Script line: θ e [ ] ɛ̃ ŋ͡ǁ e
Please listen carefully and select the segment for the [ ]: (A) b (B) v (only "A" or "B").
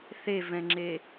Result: B